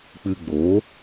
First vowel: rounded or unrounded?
unrounded